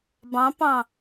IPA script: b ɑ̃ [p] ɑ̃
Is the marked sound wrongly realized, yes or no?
no